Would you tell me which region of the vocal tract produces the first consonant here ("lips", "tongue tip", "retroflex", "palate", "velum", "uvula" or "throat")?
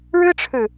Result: retroflex